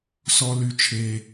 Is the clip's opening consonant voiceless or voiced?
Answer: voiceless